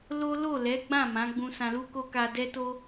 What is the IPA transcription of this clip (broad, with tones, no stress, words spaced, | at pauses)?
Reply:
lo˦ lo˦˨lɛ˨˦ ɡ͡bã˦˨ mã˨˦ɡ͡bũ˧sã˧ lu˦ko˦ka˧ dɛ˦to˦